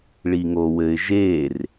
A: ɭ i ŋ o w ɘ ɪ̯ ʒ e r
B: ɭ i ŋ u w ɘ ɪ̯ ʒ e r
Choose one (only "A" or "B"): A